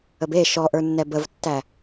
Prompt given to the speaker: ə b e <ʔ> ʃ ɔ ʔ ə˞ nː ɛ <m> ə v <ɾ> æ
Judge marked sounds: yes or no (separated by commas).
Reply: no, no, no